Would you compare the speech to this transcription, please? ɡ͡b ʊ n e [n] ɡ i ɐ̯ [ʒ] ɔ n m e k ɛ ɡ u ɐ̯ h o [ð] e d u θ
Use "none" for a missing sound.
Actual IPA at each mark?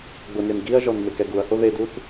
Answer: m, ʒ, ð

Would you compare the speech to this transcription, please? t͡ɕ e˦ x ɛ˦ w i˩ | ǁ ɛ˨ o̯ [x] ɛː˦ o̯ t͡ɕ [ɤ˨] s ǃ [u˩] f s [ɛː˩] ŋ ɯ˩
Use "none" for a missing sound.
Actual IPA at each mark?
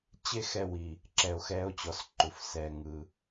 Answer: x, ɔ˨, u˩, ɛː˨

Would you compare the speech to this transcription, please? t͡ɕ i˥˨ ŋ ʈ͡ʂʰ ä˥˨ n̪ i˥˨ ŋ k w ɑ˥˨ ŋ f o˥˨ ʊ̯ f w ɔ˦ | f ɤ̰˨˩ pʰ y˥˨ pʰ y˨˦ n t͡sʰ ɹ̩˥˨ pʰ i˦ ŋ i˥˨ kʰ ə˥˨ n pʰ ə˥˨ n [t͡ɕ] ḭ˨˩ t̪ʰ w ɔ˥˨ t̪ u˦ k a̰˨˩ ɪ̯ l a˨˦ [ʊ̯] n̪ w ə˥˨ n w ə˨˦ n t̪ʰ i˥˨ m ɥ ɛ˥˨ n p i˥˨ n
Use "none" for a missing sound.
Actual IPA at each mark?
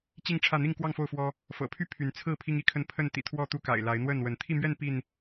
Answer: t̪, ɪ̯

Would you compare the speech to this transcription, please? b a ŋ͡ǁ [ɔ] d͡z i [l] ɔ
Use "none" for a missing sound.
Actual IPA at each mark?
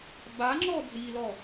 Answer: ɔ, l

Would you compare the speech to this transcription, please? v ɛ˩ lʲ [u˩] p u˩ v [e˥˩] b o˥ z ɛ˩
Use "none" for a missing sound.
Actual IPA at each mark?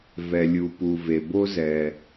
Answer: u˩, e˩

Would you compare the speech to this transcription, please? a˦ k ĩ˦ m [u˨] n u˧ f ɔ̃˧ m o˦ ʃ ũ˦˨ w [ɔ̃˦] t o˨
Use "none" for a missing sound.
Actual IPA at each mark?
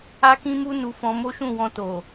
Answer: u˦, ɔ̃˧

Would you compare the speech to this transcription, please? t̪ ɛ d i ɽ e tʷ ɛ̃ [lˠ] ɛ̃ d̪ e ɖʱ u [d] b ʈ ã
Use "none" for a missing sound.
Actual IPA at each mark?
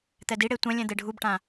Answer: lʲ, none

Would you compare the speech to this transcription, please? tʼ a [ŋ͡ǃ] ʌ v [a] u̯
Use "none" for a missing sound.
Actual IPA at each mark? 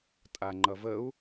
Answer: ŋ͡ǃ, ə

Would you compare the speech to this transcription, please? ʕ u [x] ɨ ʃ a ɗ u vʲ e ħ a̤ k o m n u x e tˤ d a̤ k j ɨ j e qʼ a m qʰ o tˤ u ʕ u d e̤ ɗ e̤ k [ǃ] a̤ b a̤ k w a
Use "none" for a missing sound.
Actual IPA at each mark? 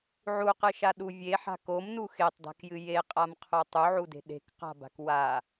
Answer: q, q

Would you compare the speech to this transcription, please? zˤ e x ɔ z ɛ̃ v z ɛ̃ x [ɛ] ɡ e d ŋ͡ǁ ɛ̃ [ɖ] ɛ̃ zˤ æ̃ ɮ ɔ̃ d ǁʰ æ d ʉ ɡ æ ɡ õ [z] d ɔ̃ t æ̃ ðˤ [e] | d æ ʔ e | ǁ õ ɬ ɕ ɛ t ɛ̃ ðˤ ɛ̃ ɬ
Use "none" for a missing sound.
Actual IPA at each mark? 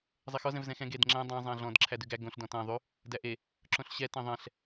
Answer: ɛ̃, dˤ, ɬ, y

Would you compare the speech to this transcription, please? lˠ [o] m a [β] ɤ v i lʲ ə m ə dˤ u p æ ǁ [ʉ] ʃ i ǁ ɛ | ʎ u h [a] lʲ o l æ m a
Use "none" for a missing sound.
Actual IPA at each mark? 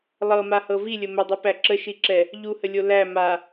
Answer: ɤ, h, ə, ə

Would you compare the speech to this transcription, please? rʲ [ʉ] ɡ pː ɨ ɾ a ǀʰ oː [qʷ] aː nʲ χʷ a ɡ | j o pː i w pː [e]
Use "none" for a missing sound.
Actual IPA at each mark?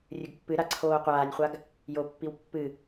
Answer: ʉ, qʷ, ɨ

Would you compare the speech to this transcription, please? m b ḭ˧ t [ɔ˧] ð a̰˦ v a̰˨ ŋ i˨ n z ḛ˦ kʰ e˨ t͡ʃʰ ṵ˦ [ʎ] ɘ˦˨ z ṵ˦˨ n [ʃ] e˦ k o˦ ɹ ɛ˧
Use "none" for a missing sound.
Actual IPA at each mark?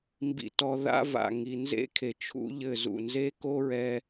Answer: ɔ˧, ʎ, z

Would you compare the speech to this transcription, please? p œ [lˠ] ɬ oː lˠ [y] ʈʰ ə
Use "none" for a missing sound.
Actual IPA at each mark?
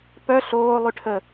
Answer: none, y

